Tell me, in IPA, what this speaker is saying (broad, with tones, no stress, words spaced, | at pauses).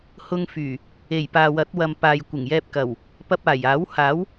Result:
hʊ˧ŋfyː˨˩ | e˨˩jpaː˨wɐ˨˥t̚wɐ˨m paː˨jkʷɪ˨˩ŋjɛː˧p̚kɐ˨˩w | pɐ˧p̚aː˨˩jaː˨˥w haː˨˥w